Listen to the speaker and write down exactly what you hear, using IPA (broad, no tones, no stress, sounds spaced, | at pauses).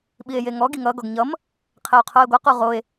ɓ i e̯ j e ŋ ɔ ɡ i ŋ ʌ ɡ ɔ ɡ ɲ ʌ m | qʰ e o̯ qʰ o e̯ ɡʷ ʌ q u ʁ o e̯